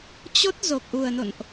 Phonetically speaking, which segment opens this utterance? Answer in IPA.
t͡ɕ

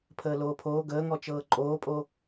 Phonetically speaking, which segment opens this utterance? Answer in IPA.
pʰ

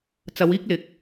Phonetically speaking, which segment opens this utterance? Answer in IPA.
t͡s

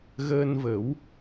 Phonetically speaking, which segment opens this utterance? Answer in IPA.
ɣ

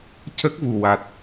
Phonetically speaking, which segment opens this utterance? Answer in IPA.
c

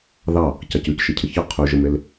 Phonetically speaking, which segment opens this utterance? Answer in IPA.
ð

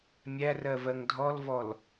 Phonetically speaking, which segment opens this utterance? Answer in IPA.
mʲ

